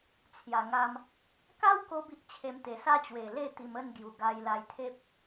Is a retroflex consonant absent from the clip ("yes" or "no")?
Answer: yes